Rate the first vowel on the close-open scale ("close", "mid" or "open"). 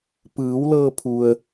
close